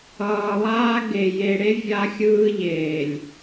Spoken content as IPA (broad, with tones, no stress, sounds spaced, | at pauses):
ʌː˨ lˠ aː˦ ɡ e˨ j e˨ ɽ e˦ vʲ a˦ xʲ ɯː˦ ʎ eː˨ lʲ